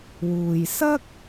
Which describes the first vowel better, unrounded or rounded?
rounded